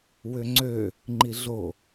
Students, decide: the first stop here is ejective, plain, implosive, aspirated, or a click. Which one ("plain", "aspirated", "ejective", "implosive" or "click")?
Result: click